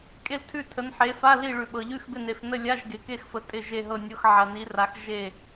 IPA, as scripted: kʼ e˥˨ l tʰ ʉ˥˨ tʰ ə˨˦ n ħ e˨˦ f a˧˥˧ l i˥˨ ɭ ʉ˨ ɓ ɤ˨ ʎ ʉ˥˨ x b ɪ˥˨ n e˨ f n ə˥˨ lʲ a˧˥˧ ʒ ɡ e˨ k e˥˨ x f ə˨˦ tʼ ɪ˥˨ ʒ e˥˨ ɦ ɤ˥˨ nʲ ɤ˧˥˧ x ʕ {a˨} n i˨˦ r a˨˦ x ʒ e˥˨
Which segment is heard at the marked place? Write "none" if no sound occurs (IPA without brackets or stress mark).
ɐ˨